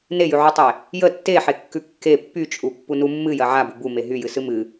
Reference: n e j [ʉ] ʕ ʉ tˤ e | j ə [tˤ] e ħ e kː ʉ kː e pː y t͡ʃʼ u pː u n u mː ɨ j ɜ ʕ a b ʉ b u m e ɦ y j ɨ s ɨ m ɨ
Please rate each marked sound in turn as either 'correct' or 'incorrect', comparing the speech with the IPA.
correct, incorrect

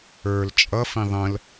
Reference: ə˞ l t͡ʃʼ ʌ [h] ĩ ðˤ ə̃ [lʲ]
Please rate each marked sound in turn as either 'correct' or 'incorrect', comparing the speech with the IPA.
incorrect, incorrect

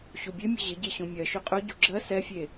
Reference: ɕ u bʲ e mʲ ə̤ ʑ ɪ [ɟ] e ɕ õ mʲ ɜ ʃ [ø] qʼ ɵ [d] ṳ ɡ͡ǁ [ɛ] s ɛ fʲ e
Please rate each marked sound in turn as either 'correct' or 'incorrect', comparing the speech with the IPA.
correct, incorrect, incorrect, incorrect

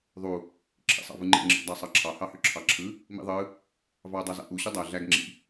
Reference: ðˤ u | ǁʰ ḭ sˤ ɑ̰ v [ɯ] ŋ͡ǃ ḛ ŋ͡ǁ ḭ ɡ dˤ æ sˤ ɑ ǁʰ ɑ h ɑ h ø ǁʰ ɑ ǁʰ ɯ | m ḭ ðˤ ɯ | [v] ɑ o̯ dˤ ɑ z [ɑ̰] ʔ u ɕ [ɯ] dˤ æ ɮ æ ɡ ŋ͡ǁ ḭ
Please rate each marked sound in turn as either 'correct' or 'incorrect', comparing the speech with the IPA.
correct, correct, correct, correct

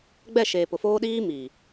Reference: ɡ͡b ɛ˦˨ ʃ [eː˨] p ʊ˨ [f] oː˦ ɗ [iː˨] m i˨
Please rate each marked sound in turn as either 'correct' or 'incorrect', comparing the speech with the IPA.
correct, correct, incorrect

